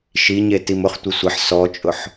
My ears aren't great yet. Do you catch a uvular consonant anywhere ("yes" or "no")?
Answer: yes